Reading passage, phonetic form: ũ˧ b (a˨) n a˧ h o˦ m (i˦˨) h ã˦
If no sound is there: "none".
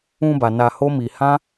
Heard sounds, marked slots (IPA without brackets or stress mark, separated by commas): a˨, i˧